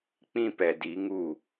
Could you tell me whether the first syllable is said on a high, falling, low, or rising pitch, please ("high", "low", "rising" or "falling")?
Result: high